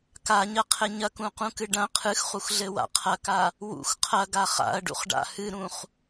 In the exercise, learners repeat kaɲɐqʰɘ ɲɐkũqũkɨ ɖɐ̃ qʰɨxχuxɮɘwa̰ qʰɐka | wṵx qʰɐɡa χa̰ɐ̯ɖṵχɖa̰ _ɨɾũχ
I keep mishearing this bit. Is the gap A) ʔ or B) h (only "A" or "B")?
B